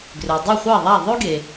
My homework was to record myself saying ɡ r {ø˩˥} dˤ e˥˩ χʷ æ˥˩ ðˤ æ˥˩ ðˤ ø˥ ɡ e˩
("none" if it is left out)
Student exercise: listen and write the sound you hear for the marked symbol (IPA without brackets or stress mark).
ø˩